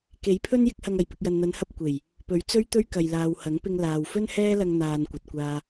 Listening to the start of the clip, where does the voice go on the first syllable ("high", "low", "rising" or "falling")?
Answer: rising